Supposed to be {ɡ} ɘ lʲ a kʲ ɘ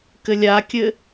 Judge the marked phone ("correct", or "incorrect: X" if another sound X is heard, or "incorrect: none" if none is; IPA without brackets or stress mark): incorrect: k